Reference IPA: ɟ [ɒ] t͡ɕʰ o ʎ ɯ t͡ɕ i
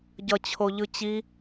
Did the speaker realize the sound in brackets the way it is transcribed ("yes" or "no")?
no